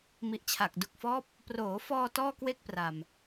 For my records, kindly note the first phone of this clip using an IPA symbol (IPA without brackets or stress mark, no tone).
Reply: m